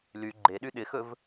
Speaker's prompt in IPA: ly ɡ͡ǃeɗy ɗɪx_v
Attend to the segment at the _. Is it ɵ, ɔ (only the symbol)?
ɵ